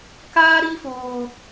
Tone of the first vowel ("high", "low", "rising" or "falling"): high